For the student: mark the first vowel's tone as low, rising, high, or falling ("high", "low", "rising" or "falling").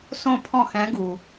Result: falling